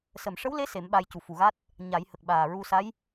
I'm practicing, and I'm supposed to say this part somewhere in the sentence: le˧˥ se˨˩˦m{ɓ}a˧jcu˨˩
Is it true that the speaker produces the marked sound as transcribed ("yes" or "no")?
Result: yes